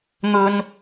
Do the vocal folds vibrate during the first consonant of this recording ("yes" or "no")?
yes